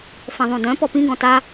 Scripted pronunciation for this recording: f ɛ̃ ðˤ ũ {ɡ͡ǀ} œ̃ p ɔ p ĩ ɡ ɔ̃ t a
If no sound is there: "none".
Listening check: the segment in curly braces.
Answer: d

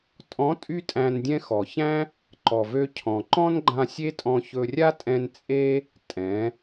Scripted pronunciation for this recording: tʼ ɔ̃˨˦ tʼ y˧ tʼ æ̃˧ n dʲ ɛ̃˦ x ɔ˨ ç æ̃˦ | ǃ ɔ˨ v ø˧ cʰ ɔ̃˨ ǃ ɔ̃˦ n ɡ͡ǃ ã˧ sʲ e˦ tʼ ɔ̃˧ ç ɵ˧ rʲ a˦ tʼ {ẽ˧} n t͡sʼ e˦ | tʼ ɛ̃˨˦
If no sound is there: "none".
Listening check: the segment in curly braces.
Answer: ɛ̃˧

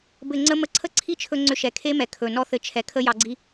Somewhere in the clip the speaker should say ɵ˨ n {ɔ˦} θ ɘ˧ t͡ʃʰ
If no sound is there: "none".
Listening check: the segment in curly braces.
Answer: ɔ˦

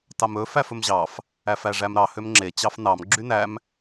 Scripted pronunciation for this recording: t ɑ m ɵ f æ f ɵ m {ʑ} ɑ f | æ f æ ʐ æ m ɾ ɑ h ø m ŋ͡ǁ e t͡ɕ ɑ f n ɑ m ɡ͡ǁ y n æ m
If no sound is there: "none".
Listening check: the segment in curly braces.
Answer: ʑ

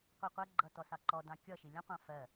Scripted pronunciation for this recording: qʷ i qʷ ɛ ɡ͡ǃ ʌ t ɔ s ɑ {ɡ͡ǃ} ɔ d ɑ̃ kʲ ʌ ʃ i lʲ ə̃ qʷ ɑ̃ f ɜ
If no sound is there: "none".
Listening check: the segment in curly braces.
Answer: ǃ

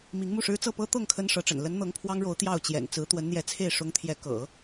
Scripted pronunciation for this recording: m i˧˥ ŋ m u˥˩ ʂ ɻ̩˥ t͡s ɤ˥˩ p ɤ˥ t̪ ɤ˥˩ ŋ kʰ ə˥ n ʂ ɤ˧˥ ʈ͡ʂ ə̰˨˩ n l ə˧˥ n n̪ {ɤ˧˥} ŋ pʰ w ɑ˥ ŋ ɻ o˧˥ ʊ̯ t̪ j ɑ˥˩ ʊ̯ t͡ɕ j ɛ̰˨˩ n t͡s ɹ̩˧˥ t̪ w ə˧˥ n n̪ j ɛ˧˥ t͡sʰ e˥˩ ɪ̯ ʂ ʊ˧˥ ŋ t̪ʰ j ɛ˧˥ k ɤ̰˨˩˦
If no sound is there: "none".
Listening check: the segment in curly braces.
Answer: ɤ˧˥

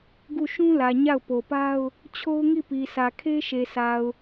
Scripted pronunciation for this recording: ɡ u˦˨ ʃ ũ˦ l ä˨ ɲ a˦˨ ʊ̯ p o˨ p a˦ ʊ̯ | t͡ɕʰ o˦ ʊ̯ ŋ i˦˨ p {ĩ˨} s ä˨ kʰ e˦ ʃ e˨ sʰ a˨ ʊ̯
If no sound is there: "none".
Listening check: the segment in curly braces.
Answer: i˨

